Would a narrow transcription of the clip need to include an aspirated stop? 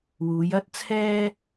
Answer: yes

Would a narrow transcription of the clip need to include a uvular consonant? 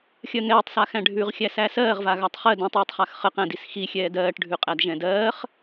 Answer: yes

